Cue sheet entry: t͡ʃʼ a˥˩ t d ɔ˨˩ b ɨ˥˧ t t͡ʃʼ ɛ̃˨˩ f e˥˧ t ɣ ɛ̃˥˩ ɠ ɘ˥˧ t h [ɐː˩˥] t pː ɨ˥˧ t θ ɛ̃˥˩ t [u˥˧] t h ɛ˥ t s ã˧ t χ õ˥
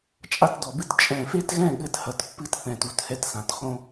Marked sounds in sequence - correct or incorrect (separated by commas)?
incorrect, correct